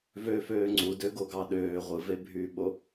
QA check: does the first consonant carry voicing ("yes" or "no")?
yes